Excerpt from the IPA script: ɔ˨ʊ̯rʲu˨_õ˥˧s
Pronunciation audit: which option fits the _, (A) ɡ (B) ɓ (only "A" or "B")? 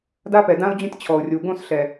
A